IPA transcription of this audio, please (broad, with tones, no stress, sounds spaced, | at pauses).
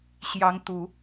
ɕ j ɑ˧˥ ŋ t̪ u˨˩˦